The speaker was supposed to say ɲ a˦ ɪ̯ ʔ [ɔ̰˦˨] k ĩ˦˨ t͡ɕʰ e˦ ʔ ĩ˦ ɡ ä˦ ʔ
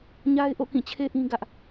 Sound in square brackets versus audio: incorrect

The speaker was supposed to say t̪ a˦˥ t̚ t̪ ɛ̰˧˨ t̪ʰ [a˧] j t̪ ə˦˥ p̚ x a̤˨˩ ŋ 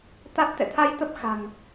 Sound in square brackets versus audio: correct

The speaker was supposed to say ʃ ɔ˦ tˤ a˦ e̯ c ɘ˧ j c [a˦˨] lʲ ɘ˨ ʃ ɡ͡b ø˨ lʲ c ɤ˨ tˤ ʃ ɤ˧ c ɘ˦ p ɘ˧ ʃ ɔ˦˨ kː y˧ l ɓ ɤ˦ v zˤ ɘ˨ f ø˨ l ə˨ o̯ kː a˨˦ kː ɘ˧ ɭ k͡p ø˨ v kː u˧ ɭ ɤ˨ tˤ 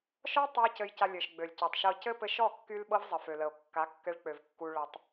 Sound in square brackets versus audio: incorrect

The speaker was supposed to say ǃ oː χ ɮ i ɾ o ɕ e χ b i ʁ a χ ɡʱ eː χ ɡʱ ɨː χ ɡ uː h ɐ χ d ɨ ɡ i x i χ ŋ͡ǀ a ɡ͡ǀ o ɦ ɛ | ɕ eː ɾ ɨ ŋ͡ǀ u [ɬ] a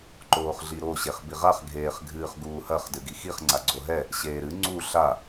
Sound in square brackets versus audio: correct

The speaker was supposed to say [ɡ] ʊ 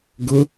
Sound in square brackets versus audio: correct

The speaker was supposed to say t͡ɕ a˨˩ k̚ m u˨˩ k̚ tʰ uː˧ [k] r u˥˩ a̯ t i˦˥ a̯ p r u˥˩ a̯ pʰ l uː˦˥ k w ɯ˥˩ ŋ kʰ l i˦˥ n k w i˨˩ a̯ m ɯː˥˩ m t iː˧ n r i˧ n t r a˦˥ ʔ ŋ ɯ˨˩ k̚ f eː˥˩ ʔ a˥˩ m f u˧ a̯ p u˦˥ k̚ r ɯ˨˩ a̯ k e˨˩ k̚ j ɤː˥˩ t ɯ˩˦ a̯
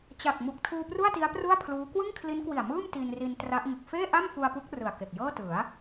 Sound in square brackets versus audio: incorrect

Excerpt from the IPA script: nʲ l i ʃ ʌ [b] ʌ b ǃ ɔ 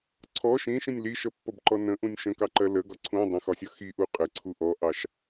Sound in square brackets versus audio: incorrect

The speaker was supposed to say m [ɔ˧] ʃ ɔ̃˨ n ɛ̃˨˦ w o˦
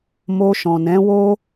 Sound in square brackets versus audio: incorrect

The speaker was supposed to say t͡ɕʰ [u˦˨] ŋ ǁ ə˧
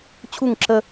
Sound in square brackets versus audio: correct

